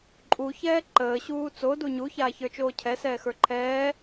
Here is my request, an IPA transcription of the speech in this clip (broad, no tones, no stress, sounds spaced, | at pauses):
ǃʼ u ç ɛː ǃ əː ɕ uː t͡s o d u ɲ u ç aː ç ə˞ t͡ʃ oː cʰ ɛ s ɛː x ə˞ ǃʰ ɛː